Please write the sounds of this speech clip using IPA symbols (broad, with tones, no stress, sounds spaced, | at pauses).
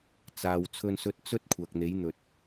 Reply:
t͡s aː˨ w t͡sʰ ɵ˧ n s ɵ˧ t̚ t͡s ɵ˥ t̚ kʷʰ ɐ˨ k̚ n̪ e˨˥ j n̪ ɵ˨ t̚